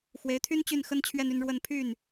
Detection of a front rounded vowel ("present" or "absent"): present